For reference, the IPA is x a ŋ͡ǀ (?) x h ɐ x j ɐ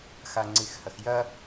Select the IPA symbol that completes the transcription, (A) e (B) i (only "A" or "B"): B